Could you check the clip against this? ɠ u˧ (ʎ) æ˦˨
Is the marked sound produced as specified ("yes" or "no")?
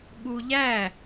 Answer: yes